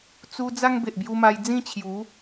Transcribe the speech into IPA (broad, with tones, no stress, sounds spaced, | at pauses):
t͡s u˧ d͡z a˦ ŋ b e˨ ʔ b j u˧ m a˧ j d͡z ĩ˥˧ t͡ɕʰ j u˨˦